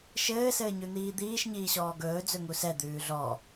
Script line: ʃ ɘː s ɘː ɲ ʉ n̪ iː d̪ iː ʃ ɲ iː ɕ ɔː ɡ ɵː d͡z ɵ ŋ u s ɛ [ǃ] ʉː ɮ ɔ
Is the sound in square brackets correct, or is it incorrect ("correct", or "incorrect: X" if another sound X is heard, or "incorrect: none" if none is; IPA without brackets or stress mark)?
incorrect: d̪